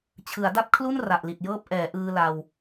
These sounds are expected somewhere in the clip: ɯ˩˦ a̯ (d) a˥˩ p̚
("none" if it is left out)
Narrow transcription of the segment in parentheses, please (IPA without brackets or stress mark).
d